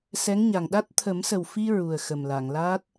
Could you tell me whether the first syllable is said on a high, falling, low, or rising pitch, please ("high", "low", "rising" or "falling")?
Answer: rising